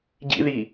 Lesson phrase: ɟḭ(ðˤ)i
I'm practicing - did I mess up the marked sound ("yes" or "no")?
yes